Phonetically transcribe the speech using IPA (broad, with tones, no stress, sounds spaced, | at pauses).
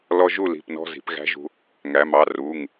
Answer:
l ɔ˧ ʒ u˥˩ l i̤˩˧˩ p n ɔ̤˧ z i̤˩˧ p ɣ æ̤˧˥ ʒ ṳ˧ | ŋ æ˩˧ m ɑ˩˧˩ r u˩˧˩ ŋ